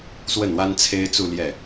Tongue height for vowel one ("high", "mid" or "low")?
mid